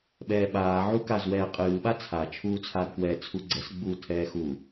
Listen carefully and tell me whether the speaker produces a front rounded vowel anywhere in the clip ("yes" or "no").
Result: no